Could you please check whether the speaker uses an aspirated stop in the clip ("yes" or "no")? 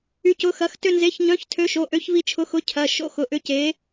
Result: yes